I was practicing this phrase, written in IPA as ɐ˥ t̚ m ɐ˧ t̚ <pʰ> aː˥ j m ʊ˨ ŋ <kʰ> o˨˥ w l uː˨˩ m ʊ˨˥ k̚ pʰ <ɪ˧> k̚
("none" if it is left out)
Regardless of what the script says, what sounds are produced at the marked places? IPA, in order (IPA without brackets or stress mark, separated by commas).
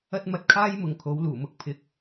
kʰ, kʰ, ɪ˨˥